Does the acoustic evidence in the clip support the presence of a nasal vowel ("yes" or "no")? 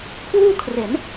no